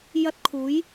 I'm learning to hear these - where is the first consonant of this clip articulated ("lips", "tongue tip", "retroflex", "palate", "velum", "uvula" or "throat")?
palate